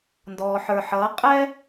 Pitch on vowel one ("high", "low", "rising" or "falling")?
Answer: low